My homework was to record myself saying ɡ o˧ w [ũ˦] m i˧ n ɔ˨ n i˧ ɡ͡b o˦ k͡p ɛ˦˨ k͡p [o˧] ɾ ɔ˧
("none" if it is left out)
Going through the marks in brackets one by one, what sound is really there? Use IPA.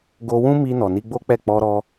ũ˦, ɔ˧

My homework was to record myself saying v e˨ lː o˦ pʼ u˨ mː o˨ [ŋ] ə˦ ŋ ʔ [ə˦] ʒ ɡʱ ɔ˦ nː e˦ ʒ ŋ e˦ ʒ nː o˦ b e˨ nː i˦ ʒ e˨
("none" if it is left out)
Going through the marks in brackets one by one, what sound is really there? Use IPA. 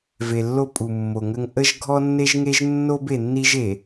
ŋ, ə˦

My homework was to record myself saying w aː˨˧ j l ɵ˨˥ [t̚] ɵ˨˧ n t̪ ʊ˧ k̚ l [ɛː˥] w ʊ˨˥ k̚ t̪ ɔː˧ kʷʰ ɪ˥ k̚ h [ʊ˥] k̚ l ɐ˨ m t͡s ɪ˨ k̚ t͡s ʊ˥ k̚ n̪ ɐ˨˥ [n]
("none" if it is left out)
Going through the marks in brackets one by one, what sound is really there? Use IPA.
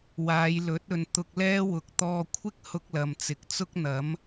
t̚, ɛː˥, ʊ˥, m

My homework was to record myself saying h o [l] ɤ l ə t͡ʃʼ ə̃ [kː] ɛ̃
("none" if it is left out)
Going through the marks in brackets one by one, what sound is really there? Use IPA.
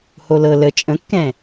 l, kː

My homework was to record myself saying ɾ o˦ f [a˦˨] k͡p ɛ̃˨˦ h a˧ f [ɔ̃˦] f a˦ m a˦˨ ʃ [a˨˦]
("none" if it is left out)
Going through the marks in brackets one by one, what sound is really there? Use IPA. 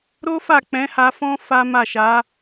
a˦˨, ɔ̃˦, a˨˦

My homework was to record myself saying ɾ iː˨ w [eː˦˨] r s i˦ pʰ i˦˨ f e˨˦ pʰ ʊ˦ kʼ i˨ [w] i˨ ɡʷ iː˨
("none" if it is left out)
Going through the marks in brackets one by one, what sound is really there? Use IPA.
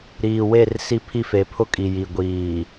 e˦˨, j

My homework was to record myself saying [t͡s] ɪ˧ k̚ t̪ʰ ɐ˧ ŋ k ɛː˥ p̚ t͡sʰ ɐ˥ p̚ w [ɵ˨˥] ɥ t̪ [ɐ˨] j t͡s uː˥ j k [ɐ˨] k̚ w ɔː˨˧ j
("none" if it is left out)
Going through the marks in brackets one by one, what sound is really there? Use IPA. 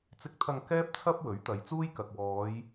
t͡s, ɵ˨˥, ɐ˨, ɐ˨

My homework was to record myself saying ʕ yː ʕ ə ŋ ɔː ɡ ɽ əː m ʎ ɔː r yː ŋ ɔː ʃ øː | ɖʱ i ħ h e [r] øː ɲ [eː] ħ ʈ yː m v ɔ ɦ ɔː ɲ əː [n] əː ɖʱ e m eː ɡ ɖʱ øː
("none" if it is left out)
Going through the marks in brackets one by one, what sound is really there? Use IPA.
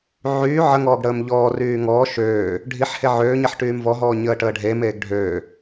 ʕ, e, ʈ

